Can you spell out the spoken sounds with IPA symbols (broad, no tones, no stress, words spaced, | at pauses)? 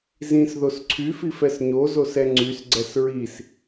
zĩs ðosǀʰyfi fɛsɲozos ɛŋ͡ǀysɡ͡ǀɛs ɹis